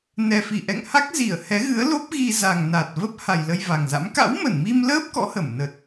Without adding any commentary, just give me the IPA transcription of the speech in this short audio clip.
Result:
n ɛ˨˩ f i˧˩ ʔ ɛ̰˧˨ ŋ h a˦˥ k̚ z i˧˩ ə̯ h ɛ˨˦ ɣ ɨ˨˦ ə̯ l o˦˥ p̚ ɣ i˧ z a˨˩ ŋ n a˨˩ t̚ v ə˦˥ p̚ h a˨˩ j l ə˧ j v a˨˩ ŋ z a̰˧˥ m k a̰˧˥ w m ə˧˩ n m i˧ m l əː˦˥ p̚ k ɔ̰˧˥ h ə˧˩ m n ə˨˩ t̚

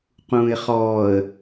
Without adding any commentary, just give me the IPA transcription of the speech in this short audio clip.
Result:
q ũː ɪ̯ χ ɔː ə̯

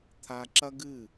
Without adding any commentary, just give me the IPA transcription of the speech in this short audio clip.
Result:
t̪ʰ a˦ ǁ ɐ˦ ɡ ɨ˦˨

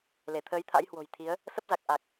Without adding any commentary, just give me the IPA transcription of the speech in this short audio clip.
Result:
l e˧˩ t̪ʰ əː˨˦ j t̪ʰ a̰˧˥ j h w o̤˨˩ j t̪ʰ i˨˦ ə̯ | s ə˦˥ p̚ z a˨˩ k̚ ʔ a˨˩ k̚

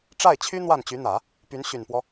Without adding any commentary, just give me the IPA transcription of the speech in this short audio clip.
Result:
ʈ͡ʂ a˥˩ ɪ̯ t͡ɕʰ y˥ n̪ w a˥˩ n t͡ɕ y˧˥ n̪ ä˨˩˦ | p y˧˥ n ɕ y˨˩ n p w ɔ˦

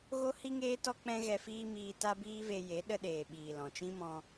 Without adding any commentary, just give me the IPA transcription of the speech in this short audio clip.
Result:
ɣ o˦ h i˦ ŋ eː˦ t ɔ˦ k͡p ɛ̃˦ ɣ ɛ˧ f iː˦ m iː˧ t a˦ b iː˦ v e˧ j e˨˦ ɗ ə˧ ɗ eː˨ ɓ iː˨ l ɔ̃˨ t͡ʃ ĩ˦ m ɔ̃˧

